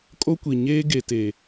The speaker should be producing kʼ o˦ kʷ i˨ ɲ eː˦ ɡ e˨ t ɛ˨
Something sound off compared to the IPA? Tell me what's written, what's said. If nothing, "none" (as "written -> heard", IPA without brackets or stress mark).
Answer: ɛ˨ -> e˨